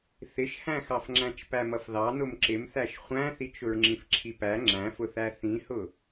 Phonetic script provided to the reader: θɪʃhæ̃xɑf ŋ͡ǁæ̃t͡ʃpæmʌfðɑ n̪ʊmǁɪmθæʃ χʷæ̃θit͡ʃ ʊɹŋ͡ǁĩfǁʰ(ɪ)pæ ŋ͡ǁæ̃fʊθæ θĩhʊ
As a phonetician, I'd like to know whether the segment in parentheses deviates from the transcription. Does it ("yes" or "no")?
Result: yes